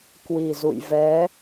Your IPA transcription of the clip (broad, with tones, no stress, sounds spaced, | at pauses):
k w i˨˩ z ṵ˧˨ j v ɛ˨˦